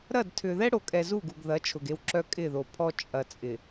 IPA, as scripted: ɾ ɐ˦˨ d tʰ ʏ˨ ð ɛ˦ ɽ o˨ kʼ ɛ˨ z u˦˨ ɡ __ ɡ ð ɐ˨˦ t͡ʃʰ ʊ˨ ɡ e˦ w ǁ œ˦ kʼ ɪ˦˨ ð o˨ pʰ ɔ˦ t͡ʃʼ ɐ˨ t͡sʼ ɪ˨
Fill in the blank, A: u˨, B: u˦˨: A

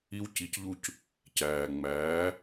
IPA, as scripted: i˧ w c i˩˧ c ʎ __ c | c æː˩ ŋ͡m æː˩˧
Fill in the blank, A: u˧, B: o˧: A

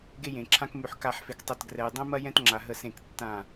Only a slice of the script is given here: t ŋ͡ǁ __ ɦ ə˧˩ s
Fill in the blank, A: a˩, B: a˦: A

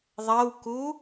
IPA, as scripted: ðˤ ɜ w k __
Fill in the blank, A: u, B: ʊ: A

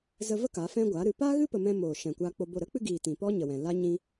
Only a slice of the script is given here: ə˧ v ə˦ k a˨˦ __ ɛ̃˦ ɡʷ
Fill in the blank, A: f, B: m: A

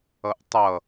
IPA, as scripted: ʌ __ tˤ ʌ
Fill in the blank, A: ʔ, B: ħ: A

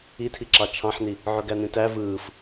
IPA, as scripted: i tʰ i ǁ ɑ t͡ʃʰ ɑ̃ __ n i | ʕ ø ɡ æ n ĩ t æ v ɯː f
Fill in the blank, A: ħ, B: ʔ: A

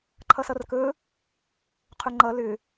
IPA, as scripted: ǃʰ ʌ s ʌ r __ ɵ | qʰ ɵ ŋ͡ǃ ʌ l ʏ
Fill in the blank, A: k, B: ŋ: A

